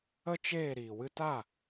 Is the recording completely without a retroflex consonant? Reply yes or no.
yes